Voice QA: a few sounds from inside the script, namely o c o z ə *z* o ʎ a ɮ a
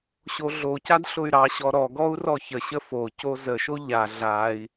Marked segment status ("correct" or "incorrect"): incorrect